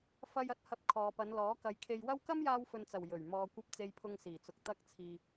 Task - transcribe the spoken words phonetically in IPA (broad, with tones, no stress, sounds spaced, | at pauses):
f ɐ˧ j ɐ˨˥ t̚ h ɐ˧ p̚ kʰ ɔː˨ p ɐ˨˧ n l ɔː˨˥ k ɐ˨˧ j kʰ e˧ j w ɐ˥ w k ɐ˥ m j aː˧ w f ɵ˨ n t͡s ɐ˨˩ w j ɵ˨˩ ɥ m ɔː˨ kʷ ɐ˧ p̚ t͡s e˧ j pʰ ʊ˧ ŋ s iː˨˩ t͡s ʊ˨ k̚ t̪ ɐ˧ k̚ t͡sʰ iː˨